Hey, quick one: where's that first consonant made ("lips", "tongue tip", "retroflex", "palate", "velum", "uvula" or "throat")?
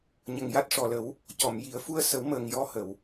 palate